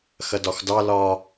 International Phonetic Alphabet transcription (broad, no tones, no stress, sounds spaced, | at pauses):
x ɐ d ɒ x d ɑ l ɒ